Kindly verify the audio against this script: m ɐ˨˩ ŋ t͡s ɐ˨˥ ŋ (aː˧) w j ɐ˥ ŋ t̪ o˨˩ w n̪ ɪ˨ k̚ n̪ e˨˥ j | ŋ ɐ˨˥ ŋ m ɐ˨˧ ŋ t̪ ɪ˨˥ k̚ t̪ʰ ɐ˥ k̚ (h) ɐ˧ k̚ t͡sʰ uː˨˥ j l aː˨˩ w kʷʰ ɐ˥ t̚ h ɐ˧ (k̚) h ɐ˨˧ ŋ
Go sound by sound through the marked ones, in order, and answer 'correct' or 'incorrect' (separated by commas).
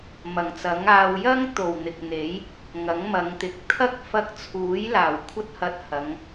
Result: correct, incorrect, incorrect